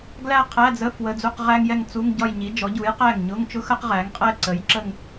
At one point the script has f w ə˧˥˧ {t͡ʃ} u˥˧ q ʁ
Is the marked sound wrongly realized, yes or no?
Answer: yes